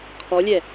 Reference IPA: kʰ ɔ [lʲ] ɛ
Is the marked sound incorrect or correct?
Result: correct